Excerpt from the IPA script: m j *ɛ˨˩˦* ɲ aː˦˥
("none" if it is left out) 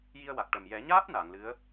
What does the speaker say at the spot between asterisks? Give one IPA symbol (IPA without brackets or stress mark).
ɛ˨˩˦